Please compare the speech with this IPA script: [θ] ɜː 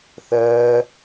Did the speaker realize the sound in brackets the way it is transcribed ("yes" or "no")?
yes